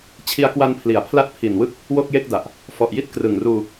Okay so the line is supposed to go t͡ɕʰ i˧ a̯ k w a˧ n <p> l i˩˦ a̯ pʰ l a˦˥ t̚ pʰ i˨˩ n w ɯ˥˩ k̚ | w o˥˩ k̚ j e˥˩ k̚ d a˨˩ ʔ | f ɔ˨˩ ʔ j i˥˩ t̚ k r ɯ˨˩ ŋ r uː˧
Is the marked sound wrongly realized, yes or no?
yes